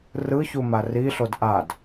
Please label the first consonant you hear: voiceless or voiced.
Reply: voiced